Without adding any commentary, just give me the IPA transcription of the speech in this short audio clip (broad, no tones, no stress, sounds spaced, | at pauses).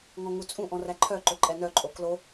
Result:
ŋ ɔ̃ ŋ u t͡sʼ ũ ʔ ɔ̃ r æ ǃʰ œ ǃ ɵ ǃʼ ɛ n œ ǃʼ o k l o